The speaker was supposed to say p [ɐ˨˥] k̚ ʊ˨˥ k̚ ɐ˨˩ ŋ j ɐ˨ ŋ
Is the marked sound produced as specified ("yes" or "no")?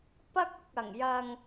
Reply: no